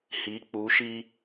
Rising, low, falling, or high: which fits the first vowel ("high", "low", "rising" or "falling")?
rising